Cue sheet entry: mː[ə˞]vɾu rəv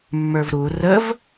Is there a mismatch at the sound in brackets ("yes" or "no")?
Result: no